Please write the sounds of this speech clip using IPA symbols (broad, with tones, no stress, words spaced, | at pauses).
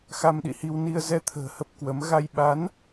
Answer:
xa˧mɗḭ˧˨hi˧w ni˧ə̯zɛ˧t̪ʰə̤ː˨˩ hə˦˥p̚kwə˨˦m ɣa˧j ɓa˨˦n